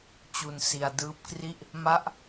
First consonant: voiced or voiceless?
voiceless